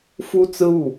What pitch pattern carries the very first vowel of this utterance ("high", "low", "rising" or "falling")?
high